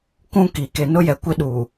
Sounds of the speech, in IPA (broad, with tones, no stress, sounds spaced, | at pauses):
k ũ˦ k i˨ k e˨ n ʊ˦ j ɛ˨ kʷ ɪ˦ ɗ uː˨